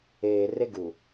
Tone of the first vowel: low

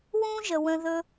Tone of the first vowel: high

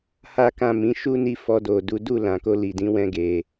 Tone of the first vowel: high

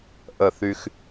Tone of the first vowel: falling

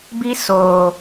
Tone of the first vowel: high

